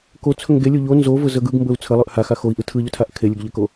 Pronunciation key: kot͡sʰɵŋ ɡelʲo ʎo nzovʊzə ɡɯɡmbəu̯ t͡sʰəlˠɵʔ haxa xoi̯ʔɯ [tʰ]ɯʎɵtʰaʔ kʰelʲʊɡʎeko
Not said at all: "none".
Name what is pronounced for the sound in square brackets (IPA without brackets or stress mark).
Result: tʰ